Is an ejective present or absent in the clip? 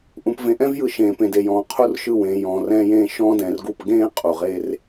present